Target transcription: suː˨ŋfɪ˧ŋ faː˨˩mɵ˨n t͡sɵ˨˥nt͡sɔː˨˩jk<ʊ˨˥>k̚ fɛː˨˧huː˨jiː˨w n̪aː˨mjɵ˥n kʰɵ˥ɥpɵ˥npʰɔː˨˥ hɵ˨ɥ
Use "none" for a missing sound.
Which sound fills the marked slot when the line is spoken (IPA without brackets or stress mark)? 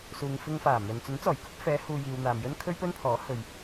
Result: ʊ˨˥